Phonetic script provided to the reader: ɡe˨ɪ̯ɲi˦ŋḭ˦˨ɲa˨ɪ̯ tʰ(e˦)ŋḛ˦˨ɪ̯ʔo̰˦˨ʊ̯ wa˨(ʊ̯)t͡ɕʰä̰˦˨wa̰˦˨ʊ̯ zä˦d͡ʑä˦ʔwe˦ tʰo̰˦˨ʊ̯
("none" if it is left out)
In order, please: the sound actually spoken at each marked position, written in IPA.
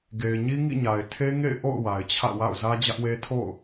e˦, ɪ̯

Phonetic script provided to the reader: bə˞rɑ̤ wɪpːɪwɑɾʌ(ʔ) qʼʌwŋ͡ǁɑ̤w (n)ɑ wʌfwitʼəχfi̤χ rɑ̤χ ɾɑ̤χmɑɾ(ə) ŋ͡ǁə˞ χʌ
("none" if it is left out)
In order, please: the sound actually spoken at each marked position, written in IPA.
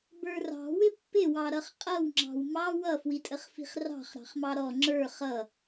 χ, m, ɔ

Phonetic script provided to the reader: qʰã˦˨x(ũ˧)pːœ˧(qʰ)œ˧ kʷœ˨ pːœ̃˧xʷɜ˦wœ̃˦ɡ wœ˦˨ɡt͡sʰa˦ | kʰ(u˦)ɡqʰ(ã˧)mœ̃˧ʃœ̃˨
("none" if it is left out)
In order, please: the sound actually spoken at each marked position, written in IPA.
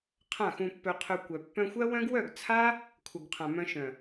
ũ˧, qʰ, u˨, ã˨

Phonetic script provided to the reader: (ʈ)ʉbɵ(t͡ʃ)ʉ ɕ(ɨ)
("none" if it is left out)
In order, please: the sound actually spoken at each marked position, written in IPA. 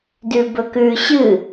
d, k, ɨ

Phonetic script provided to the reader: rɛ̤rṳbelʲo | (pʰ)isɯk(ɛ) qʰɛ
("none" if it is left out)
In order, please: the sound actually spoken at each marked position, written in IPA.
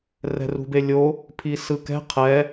pʰ, ɛ̤

